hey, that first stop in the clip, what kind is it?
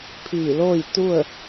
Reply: aspirated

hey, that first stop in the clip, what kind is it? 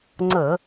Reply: click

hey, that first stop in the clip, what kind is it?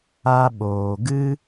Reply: implosive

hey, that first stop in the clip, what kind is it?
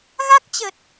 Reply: plain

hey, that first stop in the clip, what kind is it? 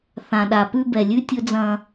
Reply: implosive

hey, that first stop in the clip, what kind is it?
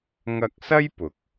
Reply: plain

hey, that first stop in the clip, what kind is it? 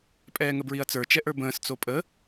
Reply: ejective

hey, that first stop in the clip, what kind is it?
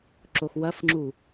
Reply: click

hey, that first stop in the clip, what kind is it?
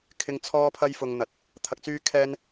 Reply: aspirated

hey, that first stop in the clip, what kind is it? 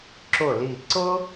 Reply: click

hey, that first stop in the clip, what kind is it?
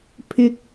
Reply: aspirated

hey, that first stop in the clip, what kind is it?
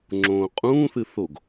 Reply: click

